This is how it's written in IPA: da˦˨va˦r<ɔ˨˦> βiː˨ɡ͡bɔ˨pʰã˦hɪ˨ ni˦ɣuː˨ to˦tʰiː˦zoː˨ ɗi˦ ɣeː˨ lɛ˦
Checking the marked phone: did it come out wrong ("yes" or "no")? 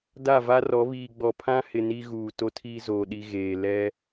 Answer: no